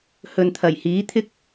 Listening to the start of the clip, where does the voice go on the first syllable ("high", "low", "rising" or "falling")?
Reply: low